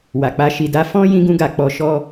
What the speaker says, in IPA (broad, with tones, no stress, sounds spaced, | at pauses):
w a˨ k͡p a˧ ʃ i˨ d a˧ f ɔ̃˦ j ĩ˧ ɡ ũ˧ ɡ a˨ k͡p ɔ˧ ʃ ɔ˦